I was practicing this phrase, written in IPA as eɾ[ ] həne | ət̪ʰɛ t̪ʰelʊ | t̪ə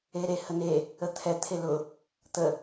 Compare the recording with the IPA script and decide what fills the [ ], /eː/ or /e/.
e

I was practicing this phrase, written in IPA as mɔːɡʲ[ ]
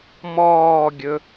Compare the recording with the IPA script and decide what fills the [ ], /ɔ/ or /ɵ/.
ɵ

